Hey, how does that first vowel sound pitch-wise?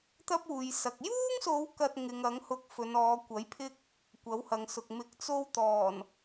high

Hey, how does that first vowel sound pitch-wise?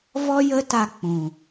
high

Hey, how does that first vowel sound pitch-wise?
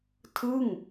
falling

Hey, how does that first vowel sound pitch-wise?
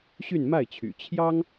falling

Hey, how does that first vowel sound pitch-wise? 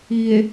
low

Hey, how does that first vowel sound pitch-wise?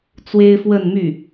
high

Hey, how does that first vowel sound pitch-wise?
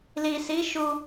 low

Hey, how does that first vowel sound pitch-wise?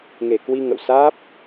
low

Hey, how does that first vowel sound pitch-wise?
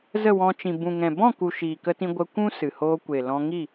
falling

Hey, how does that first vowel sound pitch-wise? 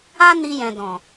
high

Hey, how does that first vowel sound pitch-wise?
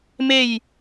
falling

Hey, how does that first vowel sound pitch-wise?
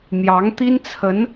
rising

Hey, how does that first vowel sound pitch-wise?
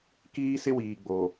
high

